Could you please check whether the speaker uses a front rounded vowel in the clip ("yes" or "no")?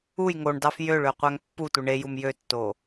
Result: yes